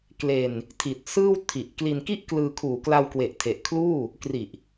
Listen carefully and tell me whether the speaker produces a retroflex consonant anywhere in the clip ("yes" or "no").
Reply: no